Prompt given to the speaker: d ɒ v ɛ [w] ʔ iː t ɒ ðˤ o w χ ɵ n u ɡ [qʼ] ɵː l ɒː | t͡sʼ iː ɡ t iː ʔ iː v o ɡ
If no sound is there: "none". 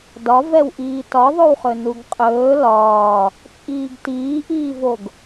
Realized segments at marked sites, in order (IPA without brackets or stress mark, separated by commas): w, qʼ